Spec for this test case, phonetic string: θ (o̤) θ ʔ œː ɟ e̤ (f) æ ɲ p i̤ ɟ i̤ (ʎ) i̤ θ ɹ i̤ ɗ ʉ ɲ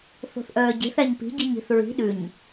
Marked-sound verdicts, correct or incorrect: correct, incorrect: θ, incorrect: ɲ

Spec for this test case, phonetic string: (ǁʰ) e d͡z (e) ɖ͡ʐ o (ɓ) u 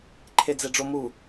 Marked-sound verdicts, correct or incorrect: incorrect: ǃʰ, correct, incorrect: m

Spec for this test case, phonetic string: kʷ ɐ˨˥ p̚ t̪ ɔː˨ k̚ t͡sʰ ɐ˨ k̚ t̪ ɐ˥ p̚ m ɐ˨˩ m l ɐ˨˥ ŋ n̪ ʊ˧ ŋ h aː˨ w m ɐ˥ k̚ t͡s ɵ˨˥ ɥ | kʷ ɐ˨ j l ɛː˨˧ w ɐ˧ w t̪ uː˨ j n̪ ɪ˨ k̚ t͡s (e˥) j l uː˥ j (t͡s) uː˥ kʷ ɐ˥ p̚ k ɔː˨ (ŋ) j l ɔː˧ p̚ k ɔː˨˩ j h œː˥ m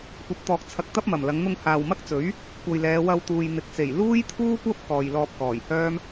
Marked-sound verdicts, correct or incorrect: incorrect: e˨˩, incorrect: t̪ʰ, incorrect: none

